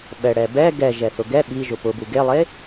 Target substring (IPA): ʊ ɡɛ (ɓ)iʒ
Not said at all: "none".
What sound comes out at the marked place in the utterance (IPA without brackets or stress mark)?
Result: ɓ